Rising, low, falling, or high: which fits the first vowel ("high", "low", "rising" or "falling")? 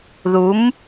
rising